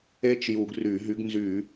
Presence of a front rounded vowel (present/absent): present